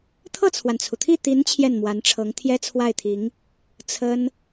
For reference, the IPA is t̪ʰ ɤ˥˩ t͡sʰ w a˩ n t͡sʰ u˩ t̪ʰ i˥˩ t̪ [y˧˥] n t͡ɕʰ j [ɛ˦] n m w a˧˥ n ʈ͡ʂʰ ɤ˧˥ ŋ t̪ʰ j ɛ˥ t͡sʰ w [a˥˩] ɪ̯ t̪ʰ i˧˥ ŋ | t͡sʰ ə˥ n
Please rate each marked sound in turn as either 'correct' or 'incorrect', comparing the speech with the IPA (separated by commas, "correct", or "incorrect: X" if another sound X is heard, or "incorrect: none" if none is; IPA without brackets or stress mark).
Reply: incorrect: i˧˥, incorrect: ɛ˥˩, correct